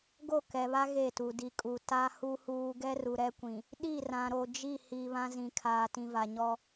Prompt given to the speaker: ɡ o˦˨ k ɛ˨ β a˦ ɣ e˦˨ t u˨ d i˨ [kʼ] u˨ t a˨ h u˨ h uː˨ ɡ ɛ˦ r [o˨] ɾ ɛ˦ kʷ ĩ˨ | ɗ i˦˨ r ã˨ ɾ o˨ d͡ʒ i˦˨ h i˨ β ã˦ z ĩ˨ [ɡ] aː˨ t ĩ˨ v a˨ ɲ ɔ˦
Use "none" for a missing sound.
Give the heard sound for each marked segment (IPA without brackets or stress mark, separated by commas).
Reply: kʼ, u˨, kʰ